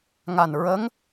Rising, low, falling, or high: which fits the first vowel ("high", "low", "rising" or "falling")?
low